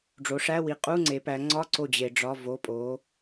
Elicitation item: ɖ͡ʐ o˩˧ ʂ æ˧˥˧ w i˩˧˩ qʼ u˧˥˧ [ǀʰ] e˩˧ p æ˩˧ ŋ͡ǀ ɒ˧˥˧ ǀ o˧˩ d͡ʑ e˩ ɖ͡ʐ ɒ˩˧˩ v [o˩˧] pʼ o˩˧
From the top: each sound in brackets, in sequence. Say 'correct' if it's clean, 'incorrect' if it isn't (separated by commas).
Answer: incorrect, incorrect